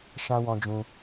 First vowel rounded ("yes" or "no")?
no